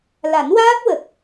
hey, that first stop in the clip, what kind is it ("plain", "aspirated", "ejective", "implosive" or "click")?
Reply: plain